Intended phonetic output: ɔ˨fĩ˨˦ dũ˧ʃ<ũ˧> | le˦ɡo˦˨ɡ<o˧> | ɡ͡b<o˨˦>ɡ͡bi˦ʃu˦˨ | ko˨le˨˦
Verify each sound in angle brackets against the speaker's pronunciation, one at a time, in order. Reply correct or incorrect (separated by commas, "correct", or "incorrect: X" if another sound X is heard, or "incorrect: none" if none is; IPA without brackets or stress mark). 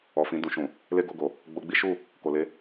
incorrect: ũ˨, incorrect: o˨, incorrect: o˧